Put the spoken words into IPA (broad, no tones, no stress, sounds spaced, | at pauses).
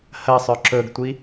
h ɜ sˤ œ ǁ ɵ ɡ tʷ i